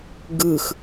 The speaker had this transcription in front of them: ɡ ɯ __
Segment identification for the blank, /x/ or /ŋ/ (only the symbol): x